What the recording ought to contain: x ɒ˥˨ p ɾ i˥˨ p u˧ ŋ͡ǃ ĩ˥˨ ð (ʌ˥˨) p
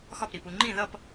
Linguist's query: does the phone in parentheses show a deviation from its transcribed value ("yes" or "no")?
no